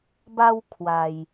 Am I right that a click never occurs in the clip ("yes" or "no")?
yes